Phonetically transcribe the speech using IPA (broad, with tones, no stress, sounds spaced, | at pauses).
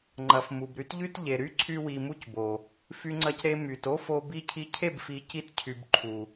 ŋ͡ǃ ɐ˨ f m u˨ b ɾ y˦ t ʎ y˦ t ʎ e˨ ɾ y˦ ǀʰ y˦ w i˧ m u˦ c b o˨ | f y˧ ŋ͡ǀ ɐ˧ c ɾ e˧ m y˨ t o˦ f o˧ b i˧ cʰ i˧ cʰ e˦˨ b f i˨˦ c i˧ t cʰ y˨ b ǃʰ u˨